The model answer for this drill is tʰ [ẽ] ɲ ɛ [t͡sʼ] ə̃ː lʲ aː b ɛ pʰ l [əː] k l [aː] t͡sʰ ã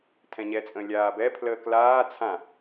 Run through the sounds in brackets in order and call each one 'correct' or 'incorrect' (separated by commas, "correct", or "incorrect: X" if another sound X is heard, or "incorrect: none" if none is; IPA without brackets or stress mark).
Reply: incorrect: ɛ̃, correct, correct, correct